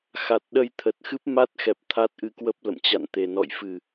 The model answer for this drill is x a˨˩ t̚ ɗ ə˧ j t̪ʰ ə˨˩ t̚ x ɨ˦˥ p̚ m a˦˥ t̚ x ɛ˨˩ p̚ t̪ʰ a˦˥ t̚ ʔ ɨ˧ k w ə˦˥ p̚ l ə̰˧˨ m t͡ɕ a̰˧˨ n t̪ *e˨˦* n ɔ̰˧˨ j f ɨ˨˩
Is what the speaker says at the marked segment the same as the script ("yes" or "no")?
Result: no